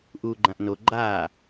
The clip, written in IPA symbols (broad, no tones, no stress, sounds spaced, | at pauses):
ʔ uː ɡ͡ǃ ã ʔ n o ɡ͡ǃ aː